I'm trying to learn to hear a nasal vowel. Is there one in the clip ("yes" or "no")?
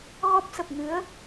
no